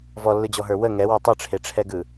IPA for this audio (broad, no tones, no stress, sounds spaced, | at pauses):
v ɔ lː ɯ d͡ʑ ɔ ɦ ə˞ w ə ŋ ɛ w ɔ tˤ ɯ ʈ͡ʂʰ e ʈ͡ʂʰ ɛ ɡ ɯ